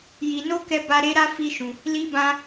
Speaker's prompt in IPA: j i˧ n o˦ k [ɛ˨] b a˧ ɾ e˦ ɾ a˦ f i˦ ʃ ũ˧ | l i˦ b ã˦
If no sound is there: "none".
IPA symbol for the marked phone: ɛ˧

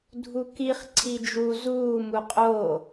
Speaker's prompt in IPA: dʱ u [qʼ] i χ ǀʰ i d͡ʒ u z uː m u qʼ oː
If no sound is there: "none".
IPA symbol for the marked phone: k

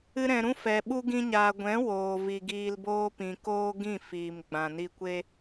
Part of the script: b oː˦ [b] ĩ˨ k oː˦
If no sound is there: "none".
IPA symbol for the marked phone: p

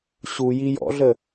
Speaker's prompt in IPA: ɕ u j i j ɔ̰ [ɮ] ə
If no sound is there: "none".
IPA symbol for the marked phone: ɮ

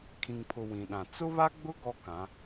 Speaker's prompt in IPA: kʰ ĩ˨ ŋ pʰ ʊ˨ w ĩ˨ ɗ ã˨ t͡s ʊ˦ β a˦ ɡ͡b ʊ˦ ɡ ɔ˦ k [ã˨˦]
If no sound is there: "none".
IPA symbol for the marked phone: ã˨˦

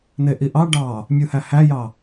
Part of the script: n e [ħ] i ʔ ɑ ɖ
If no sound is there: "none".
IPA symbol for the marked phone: ʔ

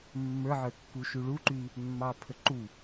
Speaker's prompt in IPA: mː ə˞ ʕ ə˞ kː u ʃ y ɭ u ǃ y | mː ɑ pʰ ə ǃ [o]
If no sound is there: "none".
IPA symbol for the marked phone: u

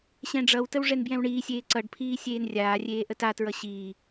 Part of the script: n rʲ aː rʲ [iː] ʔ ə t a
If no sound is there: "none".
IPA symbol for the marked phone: eː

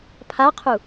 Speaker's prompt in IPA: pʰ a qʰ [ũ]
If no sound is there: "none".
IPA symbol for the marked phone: u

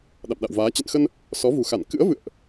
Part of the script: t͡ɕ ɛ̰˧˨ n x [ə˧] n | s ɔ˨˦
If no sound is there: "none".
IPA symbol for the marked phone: ə˧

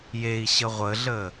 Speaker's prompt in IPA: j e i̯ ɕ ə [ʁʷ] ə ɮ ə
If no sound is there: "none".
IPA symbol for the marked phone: ʁʷ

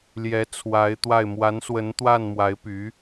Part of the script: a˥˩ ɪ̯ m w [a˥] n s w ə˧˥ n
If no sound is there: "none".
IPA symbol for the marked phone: a˧˥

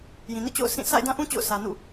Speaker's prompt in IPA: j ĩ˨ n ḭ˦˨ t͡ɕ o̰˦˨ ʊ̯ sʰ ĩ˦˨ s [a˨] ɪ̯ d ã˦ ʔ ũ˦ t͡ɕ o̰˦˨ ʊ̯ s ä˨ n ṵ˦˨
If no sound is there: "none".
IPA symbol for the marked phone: a̰˦˨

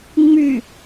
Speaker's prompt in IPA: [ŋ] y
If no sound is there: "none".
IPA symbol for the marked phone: ŋ͡m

